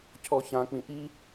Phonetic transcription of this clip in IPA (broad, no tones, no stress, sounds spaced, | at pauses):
cʰ ɔ ç ã k͡p ĩ ʔ i